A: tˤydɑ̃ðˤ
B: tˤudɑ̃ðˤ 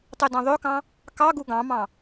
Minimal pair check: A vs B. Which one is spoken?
A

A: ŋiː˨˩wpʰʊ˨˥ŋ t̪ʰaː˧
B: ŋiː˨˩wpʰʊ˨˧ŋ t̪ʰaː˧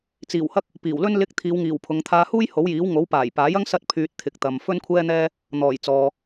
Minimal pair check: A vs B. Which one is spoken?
B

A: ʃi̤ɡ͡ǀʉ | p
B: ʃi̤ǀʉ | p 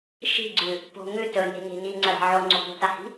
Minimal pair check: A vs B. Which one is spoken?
A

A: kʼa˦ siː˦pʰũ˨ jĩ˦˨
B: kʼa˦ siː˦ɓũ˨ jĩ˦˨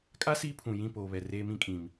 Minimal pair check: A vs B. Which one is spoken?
A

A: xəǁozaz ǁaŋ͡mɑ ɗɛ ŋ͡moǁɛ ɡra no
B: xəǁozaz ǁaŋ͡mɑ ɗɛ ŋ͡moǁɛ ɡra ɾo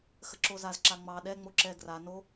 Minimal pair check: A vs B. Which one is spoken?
A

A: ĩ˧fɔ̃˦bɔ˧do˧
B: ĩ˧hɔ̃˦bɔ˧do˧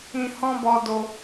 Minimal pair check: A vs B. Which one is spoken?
B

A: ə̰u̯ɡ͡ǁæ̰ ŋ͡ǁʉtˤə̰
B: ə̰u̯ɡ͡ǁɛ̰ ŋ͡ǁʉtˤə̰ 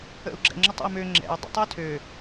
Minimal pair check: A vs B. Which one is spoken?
B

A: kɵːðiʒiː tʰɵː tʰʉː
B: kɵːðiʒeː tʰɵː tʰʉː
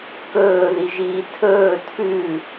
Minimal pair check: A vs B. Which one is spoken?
A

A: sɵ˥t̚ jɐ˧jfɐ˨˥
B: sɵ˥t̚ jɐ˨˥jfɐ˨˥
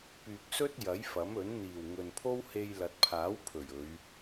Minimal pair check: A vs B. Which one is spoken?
B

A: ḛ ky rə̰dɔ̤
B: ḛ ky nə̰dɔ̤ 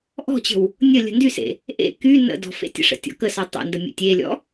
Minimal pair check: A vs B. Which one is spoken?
B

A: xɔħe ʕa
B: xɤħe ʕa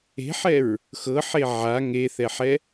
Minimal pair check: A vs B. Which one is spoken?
B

